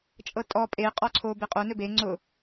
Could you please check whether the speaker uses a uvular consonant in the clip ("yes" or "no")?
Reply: yes